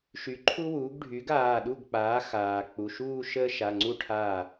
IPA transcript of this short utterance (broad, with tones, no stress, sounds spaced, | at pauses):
ʃ y˩˥ ǃʰ u˥ w uː˩˥ ɡ ɖʱ y˩˥ ɡ aː˩˧˩ ɗ u˥˩ ɡ k͡p aː˩˥ x aː˩ k͡p u˩˧˩ ʃ uː˥˧ ʃ əː˥ ʃ a˩˧˩ ŋ͡ǀ u˥˩ ʈʰ aː˥˩